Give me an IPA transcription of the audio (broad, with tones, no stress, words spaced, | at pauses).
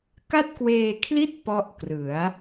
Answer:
ka˥˩t̚kweː˧kʰli˥˩t̚ pɔ˦˥ʔkrɯ˩˦a̯